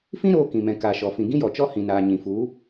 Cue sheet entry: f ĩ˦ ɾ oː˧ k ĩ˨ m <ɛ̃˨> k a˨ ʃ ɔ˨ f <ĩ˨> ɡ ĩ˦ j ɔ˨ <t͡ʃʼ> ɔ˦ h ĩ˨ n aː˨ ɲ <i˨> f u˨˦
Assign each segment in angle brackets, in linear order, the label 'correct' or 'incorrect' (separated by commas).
correct, correct, incorrect, incorrect